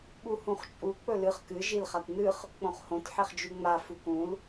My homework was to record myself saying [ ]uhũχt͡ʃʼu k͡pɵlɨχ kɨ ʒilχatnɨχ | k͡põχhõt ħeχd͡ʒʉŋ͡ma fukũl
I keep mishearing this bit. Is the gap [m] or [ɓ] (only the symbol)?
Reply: ɓ